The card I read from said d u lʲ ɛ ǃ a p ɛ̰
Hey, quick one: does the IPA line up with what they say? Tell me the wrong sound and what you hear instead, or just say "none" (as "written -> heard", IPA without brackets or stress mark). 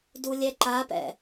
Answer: none